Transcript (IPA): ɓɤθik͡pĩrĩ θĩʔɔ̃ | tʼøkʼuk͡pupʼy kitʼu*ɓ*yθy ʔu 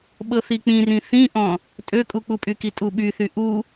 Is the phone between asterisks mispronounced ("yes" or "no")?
no